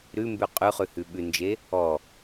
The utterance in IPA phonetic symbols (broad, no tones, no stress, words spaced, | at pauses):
ɾʉmbʉ qʼʉχʉhʉ ɓʉnd͡ʒe | ɔ